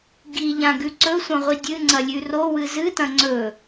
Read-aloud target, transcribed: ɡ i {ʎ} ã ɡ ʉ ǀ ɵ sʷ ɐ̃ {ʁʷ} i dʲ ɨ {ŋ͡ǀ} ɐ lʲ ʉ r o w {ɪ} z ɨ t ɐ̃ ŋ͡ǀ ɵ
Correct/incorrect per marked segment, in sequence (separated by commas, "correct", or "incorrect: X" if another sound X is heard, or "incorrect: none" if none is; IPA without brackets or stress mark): correct, correct, correct, incorrect: ɨ